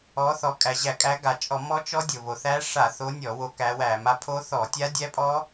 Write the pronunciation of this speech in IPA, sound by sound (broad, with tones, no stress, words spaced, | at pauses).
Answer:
ɔ˨˦θɔ˨˦ kʼæ˩ʑæ˧˩˧kʼæ˨˦ ɡa˩t͡ʃʼɔ˧˩˧ mɔ˦˥t͡ʃɔ˦˥ dʲo˩βo˩θæ˦˥ ʂa˧˩˧θo˨˦ nʲɔ˧˩˧wo˨˦ kæ˨˦wæ˧˩˧m a˨˦pʰo˦˥θɔ˧˩˧ tʲa˦˥dʲæ˦˥pʼɔ˦˥